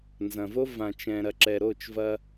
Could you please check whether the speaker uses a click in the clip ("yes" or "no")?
yes